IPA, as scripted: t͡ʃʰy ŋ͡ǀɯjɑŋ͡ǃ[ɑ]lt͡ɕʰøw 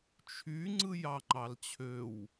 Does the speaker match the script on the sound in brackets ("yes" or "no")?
yes